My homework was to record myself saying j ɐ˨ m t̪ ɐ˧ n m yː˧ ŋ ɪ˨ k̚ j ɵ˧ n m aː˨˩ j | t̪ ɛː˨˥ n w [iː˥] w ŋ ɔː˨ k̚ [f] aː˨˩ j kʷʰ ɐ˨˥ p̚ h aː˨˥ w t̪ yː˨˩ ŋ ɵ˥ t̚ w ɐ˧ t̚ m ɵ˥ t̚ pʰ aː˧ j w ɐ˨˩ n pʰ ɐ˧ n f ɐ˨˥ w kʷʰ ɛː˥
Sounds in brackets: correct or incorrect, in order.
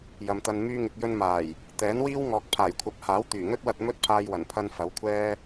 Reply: correct, incorrect

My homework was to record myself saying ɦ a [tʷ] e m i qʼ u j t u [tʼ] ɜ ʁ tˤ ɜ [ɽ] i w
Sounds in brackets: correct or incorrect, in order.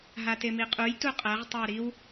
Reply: incorrect, incorrect, incorrect

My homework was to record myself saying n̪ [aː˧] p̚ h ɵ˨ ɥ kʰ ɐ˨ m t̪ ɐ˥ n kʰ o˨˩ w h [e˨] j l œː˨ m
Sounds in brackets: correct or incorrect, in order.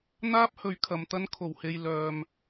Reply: incorrect, correct

